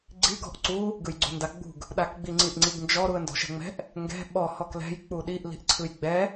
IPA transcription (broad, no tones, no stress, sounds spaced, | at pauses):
ɡ͡ǀ i ɡ ɔ̤ ʔ ǀ u | ɡ ɯ j ɡ͡ǀ ṳ n d a ɡ͡b ṳ ɡ | ɗ a k ɡ͡b i ŋ͡ǀ i ʔ ŋ͡ǀ i ɡ n d͡ʒ ɔ ɾ u ə̯ n d ɔ̤ ʃ ɛ̤ ŋ͡m ɛ̤ ʔ | ŋ ɡ ɛ̤ ɓ ɔ h ɔ k l ɛ̤ j k͡p u ɗ i ʔ l i̤ ʔ ǀʰ ɯ j ɡ͡b ɛ